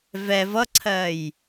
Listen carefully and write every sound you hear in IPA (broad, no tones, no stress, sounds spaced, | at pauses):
v ɛ v ʌ ǀʰ ɜ j